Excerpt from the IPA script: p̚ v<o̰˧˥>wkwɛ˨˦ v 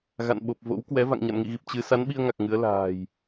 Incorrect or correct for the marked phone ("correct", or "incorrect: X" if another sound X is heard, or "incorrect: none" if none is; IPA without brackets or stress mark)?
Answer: correct